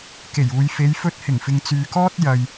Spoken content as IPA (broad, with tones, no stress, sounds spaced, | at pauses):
k e˨˩ j uː˨ j f e˨˧ j f ɵ˧ t̚ h ɪ˨˩ ŋ f ɪ˨ ŋ t͡s yː˨ k ɔː˥ t̚ j ɐ˨ j